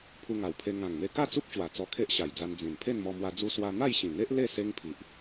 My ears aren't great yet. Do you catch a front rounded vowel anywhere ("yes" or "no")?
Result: no